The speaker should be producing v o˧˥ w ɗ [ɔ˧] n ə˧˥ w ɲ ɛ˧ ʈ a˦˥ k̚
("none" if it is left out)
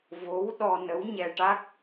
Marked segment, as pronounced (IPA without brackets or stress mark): ɔ˧